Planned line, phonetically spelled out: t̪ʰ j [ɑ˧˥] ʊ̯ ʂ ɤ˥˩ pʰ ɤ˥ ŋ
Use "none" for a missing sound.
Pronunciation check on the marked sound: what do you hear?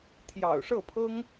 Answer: ɑ̰˨˩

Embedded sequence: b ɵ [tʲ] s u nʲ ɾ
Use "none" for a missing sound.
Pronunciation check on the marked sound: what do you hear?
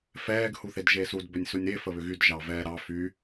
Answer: nʲ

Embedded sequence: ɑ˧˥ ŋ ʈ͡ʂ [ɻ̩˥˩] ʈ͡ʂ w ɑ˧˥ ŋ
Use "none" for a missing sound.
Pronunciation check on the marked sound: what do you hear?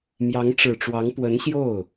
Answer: ɻ̩˨˩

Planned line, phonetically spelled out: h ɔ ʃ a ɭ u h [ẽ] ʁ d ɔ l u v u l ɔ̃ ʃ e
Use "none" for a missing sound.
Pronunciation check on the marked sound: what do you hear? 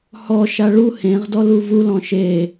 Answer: ẽ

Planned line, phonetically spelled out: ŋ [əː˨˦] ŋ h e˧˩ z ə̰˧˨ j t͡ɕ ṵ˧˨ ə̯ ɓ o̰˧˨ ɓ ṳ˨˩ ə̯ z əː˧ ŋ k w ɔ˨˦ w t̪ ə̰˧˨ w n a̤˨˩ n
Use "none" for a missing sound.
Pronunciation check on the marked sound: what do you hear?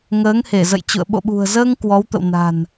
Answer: əː˨˦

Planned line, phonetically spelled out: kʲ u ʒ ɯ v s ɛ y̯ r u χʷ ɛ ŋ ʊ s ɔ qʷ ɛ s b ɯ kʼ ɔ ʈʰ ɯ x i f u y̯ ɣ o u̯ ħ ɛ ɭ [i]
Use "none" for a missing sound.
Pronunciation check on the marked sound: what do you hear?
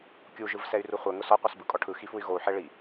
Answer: i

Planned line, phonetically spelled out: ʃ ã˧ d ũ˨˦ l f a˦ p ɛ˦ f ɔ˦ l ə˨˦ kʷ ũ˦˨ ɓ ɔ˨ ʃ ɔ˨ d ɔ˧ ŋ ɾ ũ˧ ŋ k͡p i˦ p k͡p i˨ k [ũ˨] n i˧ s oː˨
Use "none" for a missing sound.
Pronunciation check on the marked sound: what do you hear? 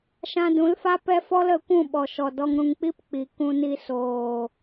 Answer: ũ˧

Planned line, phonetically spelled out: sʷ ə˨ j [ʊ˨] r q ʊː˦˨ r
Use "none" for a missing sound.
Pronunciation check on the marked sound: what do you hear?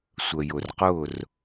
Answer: ʊ˨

